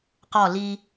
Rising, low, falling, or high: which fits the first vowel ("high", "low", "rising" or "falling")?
falling